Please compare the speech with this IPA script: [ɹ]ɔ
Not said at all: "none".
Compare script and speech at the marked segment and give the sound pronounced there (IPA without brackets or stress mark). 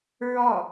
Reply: ɹ